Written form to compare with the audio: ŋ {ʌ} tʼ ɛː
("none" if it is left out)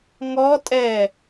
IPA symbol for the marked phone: ɔ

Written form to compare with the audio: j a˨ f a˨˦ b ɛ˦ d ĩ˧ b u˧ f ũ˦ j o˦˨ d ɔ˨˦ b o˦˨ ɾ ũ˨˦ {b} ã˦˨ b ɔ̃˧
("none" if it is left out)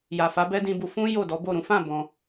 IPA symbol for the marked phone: f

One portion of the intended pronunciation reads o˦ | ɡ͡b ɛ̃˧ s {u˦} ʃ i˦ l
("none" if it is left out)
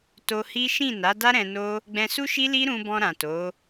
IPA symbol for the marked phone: u˦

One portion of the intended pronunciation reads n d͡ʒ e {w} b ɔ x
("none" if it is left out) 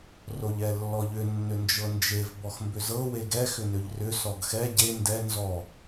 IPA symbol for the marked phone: v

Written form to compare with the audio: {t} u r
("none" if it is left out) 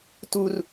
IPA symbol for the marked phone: t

